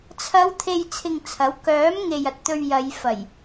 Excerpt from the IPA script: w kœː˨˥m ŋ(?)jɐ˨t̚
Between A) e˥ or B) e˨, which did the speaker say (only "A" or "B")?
B